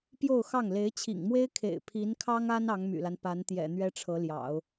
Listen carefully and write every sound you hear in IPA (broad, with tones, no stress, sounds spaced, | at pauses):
p j o˥˧ ʊ̯ x ɑ˥˩ ŋ l e˧˥ ɪ̯ t͡ɕʰ ḭ˨˩ ŋ m w e˥ ɪ̯ kʰ ḛ˨˩ ɪ̯ pʰ i˧˥ n kʰ ɑ˥ ŋ a˥ n ɑ˧˥ ŋ m y̰˨˩ l a˦ n p a˧˥ n t̪ j ɛ̰˨˩ n̪ ɥ ɛ˥ ʈ͡ʂʰ ɤ˧˥ l j ɑ̰˨˩˦ ʊ̯